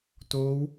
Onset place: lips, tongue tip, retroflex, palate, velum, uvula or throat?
tongue tip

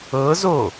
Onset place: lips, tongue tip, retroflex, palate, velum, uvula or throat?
tongue tip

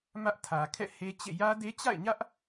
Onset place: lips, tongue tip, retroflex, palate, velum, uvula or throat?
lips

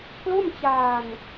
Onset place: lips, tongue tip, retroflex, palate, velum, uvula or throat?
velum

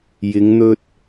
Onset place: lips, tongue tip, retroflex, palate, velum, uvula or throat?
palate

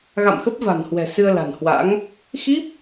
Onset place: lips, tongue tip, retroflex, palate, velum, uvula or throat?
velum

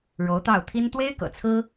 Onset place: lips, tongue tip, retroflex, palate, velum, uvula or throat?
retroflex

